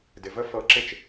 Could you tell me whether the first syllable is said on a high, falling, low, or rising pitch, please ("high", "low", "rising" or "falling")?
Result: low